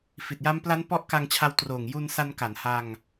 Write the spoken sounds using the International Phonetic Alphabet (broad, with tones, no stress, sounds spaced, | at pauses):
f i˨˩ t̚ j a˦˥ m p l a˦˥ n p ɔ˦˥ ʔ k a˧ ŋ t͡ɕʰ a˧ w t r oː˨˩ ŋ j u˧ n s a˧ n k a˩˦ n h a˧ ŋ